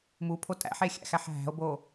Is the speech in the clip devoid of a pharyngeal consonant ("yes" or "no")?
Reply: no